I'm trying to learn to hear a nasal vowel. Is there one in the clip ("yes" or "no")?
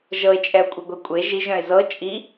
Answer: yes